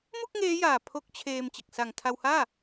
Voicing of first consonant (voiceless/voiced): voiced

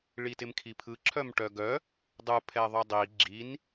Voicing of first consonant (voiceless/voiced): voiced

